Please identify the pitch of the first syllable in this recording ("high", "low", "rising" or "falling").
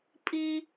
high